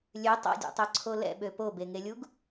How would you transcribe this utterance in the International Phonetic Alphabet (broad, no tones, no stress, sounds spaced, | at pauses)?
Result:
lʲ ø tˤ a̰ dʲ ɛ̰ tˤ œ ǀʰ o l ɛ̰ ɓ ø p o b e ŋ e lʲ u ɡ